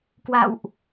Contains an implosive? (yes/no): no